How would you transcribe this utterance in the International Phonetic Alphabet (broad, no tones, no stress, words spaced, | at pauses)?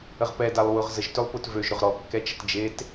əʁpɛ dalˠwʊʁzəʒ tʏlˠpʊtvøʒ ɾʊʁɾɔ kːɛt͡ʃətd͡ʒet